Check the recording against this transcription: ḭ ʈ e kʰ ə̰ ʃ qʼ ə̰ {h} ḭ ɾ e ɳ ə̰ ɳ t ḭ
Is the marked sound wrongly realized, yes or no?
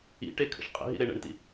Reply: yes